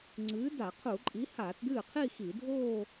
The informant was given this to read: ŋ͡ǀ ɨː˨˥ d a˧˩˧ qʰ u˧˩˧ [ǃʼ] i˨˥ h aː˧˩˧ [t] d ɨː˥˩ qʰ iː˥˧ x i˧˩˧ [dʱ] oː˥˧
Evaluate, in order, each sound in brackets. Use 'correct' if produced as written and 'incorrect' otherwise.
correct, correct, correct

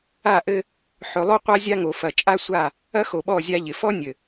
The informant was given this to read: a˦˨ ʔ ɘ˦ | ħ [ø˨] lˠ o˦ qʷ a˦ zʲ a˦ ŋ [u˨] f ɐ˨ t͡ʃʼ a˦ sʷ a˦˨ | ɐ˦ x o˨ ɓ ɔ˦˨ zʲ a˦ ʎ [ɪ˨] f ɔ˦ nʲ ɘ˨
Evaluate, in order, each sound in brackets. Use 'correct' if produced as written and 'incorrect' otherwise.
incorrect, incorrect, correct

